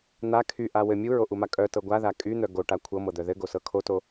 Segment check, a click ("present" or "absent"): absent